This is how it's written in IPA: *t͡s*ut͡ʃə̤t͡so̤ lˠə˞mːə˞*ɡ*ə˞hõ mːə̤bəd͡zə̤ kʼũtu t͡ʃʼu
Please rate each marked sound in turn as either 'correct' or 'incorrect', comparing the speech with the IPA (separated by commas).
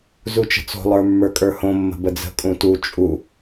incorrect, incorrect